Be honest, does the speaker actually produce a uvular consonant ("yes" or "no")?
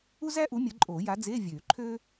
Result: no